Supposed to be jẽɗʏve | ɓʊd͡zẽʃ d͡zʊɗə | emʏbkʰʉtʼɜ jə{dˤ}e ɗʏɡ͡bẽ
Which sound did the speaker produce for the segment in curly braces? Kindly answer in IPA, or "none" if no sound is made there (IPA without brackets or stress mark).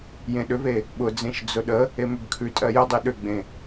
dˤ